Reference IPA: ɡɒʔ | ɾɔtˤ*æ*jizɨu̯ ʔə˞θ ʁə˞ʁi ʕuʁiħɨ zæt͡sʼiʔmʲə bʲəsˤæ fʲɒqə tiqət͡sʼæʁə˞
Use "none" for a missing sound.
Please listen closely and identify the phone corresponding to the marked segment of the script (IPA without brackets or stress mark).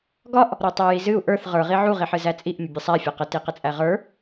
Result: æ